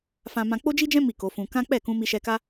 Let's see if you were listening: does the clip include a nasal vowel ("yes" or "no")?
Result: yes